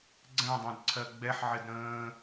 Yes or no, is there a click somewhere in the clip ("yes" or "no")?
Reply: yes